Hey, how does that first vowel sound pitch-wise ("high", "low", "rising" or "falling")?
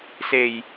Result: low